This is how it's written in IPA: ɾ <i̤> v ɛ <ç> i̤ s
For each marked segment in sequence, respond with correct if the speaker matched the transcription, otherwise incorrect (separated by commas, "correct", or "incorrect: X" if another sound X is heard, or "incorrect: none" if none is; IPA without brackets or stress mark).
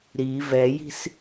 incorrect: i, incorrect: j